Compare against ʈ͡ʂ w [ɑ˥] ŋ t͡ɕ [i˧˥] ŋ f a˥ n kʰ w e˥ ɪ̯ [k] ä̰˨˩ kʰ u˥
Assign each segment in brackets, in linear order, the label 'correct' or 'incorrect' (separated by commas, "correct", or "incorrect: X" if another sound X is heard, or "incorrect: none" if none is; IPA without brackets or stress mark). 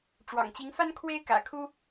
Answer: incorrect: ɑ̰˨˩, correct, correct